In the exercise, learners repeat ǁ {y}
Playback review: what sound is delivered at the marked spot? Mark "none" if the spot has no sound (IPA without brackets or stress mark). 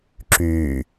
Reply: yː